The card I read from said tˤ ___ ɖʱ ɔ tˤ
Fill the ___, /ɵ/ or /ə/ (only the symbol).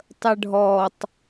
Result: ə